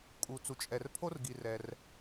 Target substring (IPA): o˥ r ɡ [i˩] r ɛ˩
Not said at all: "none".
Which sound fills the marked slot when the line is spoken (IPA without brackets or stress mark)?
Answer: i˩